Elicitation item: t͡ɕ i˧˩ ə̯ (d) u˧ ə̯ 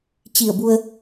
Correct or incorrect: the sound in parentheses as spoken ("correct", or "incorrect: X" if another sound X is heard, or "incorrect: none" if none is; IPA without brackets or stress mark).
incorrect: b